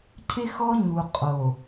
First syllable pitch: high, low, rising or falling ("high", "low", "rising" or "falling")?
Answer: high